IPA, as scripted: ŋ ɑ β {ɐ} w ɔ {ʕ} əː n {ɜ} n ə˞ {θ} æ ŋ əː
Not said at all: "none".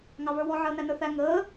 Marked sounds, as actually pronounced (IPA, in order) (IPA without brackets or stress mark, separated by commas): ə˞, ʕ, æ, θ